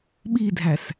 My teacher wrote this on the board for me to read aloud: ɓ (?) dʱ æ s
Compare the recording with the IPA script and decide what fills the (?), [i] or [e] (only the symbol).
i